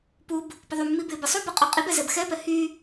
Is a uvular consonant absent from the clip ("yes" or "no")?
no